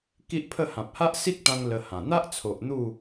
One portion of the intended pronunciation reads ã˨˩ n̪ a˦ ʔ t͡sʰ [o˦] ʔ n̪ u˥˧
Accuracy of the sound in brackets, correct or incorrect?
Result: incorrect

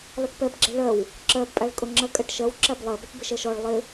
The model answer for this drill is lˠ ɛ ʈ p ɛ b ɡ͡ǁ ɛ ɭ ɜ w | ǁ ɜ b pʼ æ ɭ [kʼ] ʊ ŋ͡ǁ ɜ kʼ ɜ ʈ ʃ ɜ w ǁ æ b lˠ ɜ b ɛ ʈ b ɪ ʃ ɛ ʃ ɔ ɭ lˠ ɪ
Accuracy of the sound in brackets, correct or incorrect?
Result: correct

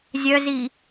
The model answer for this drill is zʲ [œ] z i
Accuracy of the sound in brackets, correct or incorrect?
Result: correct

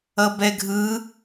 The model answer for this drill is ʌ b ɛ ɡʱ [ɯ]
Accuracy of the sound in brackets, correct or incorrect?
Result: correct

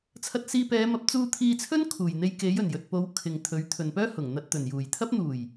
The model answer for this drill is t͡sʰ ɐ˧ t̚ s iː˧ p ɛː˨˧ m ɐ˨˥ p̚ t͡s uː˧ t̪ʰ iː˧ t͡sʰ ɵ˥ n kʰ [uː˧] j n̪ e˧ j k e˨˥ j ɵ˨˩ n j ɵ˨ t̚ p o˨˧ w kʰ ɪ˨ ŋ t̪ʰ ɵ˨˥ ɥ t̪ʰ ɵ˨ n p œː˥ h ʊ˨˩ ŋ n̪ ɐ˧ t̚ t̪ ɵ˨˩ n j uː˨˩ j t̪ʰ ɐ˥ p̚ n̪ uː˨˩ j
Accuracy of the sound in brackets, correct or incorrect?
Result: incorrect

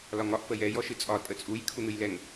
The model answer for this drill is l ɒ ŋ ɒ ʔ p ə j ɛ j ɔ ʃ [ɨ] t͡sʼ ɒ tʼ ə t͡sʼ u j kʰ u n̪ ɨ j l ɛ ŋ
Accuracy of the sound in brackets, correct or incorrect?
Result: correct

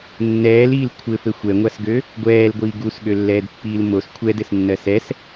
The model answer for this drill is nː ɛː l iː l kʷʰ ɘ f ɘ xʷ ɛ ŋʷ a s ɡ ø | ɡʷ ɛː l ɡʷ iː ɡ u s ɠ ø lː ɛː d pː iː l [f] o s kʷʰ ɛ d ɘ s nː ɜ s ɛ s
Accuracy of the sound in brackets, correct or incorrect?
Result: incorrect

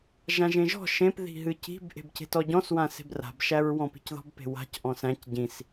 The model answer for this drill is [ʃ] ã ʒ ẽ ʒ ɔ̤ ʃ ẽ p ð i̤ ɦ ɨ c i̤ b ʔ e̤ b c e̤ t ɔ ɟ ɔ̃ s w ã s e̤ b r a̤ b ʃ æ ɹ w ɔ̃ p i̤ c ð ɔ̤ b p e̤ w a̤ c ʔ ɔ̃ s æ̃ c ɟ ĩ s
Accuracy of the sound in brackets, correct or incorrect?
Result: incorrect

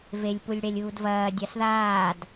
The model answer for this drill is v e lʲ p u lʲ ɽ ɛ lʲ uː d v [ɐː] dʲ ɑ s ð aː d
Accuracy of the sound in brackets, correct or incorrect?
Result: correct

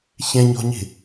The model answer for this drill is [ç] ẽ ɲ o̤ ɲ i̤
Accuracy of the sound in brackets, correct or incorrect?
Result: correct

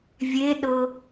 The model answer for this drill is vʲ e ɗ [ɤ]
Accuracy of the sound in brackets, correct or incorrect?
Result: correct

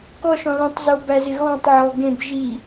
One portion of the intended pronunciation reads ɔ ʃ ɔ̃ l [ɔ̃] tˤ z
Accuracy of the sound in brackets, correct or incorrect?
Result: incorrect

